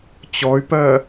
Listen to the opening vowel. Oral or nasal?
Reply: oral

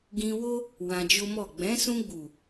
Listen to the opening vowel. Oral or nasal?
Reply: nasal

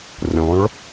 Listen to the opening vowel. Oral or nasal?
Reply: nasal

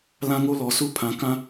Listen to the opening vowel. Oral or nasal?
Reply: nasal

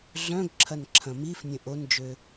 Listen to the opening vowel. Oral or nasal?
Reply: nasal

